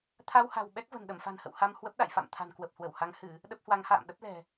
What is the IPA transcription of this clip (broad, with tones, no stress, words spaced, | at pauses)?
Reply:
t̪ʰa˧wha̤˨˩w ɓɛ˦˥k̚və̤˨˩n ɗə˧˩mfa̤˨˩nhə̰˧˨w ha˧m hwə˦˥p̚ɗa̰˧˨jfa̰˧˨mt̪ʰa̤˨˩n kwə˨˩p̚hwə˧˩wha˨˦ŋ hɨ˧˩˨ | ɗə˦˥p̚hwa˨˦ŋha̰ː˧˨m ɗə˦˥p̚lɛ̤˨˩